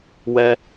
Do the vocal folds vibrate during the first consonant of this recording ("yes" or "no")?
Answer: yes